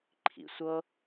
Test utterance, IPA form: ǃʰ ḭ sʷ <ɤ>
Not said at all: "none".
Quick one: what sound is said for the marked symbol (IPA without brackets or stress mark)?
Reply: ɤ